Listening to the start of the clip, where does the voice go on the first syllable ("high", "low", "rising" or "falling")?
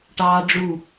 high